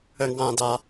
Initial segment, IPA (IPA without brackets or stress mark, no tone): ə